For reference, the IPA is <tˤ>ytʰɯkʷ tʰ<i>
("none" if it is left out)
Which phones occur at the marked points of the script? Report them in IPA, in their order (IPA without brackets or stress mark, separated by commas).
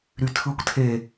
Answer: ɾ, e